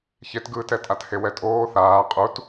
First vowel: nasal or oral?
oral